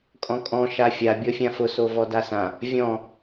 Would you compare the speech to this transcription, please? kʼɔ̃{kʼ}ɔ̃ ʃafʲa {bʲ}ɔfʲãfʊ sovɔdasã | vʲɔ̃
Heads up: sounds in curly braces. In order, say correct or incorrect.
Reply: correct, correct

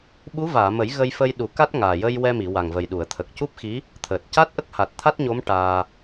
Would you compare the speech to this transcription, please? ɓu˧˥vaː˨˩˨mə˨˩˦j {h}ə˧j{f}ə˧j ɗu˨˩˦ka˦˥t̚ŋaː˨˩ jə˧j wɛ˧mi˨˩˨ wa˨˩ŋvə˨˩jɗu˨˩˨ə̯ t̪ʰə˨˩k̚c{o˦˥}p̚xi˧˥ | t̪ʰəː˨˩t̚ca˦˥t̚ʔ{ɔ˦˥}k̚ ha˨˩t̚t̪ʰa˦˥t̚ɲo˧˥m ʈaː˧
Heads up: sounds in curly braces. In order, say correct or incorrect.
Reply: incorrect: ɣ, correct, incorrect: u˦˥, incorrect: ə˦˥

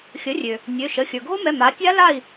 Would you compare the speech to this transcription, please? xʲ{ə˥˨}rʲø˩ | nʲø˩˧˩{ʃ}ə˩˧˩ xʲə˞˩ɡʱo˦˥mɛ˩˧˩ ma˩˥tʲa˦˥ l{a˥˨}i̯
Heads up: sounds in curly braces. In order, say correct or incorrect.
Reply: incorrect: ə˩˥, correct, correct

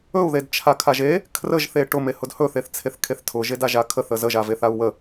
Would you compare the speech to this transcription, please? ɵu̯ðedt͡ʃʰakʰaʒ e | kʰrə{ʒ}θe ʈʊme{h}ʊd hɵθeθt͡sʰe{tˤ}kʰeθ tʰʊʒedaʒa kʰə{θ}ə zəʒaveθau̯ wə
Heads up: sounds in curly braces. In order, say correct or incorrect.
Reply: correct, correct, incorrect: θ, correct

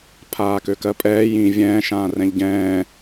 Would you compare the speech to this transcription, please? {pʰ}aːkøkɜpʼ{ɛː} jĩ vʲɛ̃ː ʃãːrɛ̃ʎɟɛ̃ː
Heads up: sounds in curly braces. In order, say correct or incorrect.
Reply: correct, correct

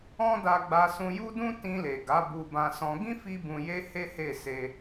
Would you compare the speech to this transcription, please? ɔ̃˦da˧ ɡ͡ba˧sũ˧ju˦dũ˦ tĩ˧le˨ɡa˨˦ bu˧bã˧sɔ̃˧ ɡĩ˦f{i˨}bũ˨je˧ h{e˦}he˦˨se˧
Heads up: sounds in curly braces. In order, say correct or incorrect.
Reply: incorrect: i˧, correct

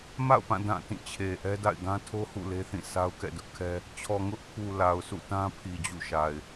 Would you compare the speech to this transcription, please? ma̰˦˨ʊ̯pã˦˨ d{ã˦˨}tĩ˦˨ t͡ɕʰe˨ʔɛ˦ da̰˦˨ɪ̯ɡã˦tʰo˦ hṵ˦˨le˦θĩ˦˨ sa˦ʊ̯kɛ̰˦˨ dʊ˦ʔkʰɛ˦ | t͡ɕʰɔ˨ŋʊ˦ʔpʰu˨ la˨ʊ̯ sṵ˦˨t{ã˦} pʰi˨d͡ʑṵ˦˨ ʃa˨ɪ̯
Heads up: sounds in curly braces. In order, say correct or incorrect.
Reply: correct, correct

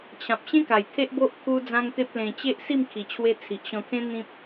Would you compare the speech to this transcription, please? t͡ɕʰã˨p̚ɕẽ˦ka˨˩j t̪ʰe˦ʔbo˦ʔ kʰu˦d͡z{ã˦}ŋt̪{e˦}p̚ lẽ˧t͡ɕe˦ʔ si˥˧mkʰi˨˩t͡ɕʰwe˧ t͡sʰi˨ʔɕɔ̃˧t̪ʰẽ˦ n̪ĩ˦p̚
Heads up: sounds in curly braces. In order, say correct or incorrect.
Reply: correct, correct

